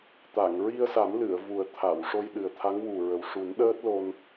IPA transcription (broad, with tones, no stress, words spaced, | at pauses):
t̪a˨˩˨ŋɹi˧ə̯sa˨˩˦mlɨ˨˩˨ə̯ vu˨˩ə̯t̪ʰa˨˩˨w ʂo˧jɗɨ˨˩ə̯t̪ʰa˧˥ŋ wu˨˩ɹə˨˩w ʂu˨˩˦nɗəː˦˥t̚ lo˧n